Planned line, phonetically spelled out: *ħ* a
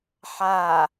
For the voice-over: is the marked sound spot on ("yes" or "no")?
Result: yes